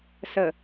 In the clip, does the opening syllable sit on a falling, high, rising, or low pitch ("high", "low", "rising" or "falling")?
low